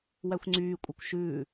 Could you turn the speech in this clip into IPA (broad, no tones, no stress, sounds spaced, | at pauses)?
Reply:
w æ xʷ ŋ͡ǀ yː kʷʼ ɛ kʷ ʃ ʉː